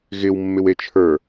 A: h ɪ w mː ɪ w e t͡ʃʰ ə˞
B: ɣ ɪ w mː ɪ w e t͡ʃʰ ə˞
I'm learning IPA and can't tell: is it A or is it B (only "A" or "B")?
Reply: B